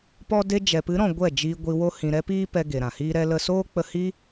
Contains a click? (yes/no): no